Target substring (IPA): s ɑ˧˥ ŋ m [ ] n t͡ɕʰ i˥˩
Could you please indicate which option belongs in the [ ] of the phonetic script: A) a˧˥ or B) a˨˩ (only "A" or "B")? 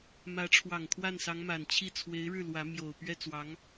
B